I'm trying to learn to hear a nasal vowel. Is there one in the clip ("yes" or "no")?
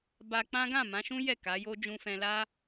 yes